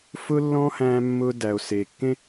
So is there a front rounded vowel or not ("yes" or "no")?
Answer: no